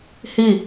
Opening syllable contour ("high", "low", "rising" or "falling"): falling